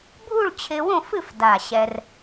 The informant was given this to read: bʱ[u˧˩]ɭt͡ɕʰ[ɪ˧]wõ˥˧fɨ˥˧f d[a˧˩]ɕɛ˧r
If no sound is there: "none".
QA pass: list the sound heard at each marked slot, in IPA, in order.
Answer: u˥˧, ɪ˧, a˧˩

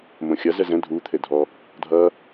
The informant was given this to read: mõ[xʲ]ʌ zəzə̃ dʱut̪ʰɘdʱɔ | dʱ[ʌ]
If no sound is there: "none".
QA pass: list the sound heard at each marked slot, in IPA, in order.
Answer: xʲ, ʌ

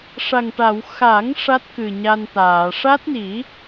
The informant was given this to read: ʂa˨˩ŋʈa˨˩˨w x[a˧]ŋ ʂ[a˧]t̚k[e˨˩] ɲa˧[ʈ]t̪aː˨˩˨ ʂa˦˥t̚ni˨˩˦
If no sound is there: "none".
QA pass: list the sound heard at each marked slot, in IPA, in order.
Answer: a˨˩˦, a˦˥, ɨ˨˩, n

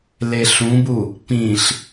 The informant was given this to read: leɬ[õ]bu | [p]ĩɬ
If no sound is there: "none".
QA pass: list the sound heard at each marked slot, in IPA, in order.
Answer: ũ, p

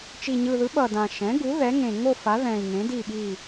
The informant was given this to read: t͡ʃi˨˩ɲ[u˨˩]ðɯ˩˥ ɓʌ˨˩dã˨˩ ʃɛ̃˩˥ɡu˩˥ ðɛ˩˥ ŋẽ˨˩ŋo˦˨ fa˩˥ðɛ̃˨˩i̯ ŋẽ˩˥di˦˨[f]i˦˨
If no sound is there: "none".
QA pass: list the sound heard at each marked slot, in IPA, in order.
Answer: ɯ˨˩, ɓ

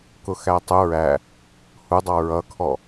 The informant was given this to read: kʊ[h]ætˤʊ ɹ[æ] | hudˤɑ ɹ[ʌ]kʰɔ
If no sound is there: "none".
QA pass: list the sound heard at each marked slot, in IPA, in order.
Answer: x, æ, ʌ

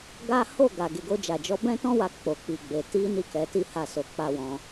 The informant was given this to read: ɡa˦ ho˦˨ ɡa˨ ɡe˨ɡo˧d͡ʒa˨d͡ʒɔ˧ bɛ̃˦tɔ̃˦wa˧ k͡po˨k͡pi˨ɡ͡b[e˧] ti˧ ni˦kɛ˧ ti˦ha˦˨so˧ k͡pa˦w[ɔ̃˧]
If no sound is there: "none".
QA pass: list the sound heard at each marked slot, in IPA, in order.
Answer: e˨, ɔ̃˧

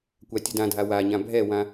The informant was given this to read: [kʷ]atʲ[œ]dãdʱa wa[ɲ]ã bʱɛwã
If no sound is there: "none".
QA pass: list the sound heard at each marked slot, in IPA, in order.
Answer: kʷ, ə, ɲ

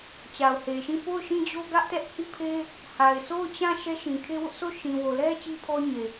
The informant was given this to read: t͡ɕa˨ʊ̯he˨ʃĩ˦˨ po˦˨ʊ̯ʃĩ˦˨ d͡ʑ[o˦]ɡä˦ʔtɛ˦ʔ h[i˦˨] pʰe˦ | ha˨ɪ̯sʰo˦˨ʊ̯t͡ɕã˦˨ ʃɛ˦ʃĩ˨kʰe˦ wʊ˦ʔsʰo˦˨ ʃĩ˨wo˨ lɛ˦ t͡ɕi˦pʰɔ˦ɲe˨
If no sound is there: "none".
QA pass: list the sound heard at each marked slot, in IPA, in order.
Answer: o˦, i˦˨

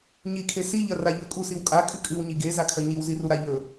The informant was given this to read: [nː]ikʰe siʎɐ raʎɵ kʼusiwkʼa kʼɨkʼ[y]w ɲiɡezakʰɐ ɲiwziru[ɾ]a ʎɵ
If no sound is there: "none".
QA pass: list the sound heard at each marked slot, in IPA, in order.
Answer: ɲ, ɨ, ɾ

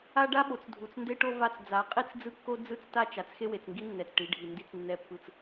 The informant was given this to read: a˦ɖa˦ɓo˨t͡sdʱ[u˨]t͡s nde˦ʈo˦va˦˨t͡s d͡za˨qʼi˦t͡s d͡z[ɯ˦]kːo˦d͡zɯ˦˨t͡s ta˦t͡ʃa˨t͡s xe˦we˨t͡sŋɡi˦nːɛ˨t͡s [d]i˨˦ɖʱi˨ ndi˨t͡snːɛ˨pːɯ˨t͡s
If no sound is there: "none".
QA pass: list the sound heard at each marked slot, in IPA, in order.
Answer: u˨, ɯ˦, ʈ

